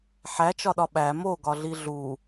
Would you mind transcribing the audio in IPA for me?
ħæt͡ʃɒɗɒ ɓæ moɡɒɮi ɮu

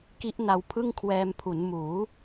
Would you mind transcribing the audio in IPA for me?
ki˦˥ʔna˧w pʰɯ˥˩ŋkʰwɛː˧mpʰu˩˦n muː˩˦

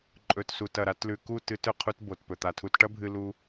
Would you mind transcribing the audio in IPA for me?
ǃʼɵ˨tsu˨tɐ˨ ɾa˧tlʉ˨ku˦˨ tɨ˧t ɵ˨qʰu˧t bo˨tpɵ˨t̪a˨tʰu˧t ʈɐ˦bʱɨ˧ lu˦

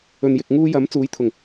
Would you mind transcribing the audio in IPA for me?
ɵ˨njɪ˨k̚ŋuː˧jɐ˨˥m t͡suː˨˥jt̪ʰʊ˨˩ŋ

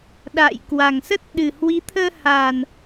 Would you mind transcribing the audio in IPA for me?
ɗa̰˧˨j kwa˨˩ŋsə˦˥t̚ ɗɨ˨˩hwi˨˦t̪ʰəː˧ ha˨˩n

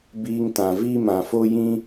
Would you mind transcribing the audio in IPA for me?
biː˧ŋtã˨ vi˦mã˨fo˦jĩ˦

